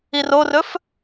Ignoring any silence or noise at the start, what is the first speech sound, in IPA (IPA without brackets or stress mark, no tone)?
i